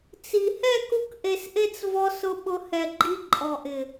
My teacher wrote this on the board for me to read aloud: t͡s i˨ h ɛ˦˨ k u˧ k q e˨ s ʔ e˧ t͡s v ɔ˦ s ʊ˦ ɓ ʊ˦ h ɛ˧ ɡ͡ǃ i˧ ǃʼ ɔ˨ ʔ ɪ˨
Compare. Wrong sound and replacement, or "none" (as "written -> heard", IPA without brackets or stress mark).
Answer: q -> ʔ